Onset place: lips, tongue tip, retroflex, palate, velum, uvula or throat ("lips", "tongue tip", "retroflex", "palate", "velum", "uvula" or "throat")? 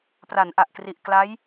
lips